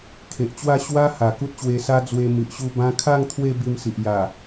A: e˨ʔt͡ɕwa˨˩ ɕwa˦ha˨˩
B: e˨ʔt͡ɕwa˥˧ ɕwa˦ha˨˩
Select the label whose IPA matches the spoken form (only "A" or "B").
B